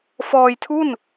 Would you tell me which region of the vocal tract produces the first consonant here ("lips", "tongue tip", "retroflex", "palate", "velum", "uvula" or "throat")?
lips